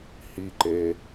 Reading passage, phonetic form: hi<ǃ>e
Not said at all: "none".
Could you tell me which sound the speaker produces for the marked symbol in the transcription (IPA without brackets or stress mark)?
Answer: ǃ